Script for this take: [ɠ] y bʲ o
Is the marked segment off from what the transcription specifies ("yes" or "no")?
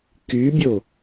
yes